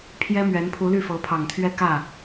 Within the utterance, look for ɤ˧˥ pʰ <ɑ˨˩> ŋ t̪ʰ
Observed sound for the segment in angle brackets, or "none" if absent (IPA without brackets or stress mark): ɑ˨˩